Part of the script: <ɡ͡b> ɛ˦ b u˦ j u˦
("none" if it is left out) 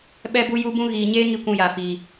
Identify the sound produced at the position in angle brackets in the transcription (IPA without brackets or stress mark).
ɓ